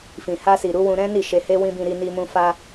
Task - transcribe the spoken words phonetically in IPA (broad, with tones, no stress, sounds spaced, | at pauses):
f ĩ˨ h a˧ s i˨ ɾ u˨˦ w ũ˧ ɾ ɛ̃˦ n i˦˨ ʃ e˧ h e˦ w ĩ˦ b ĩ˧ ɾ i˧ n i˧ m ũ˧ f a˧